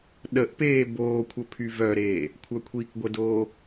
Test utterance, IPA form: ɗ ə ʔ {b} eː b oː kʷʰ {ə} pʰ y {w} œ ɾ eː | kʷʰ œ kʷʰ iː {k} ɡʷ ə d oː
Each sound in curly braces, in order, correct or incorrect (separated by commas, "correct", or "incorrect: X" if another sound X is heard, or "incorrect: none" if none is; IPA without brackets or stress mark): incorrect: p, correct, incorrect: v, correct